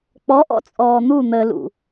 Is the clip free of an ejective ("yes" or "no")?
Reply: no